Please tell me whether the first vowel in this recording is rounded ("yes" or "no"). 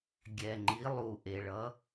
no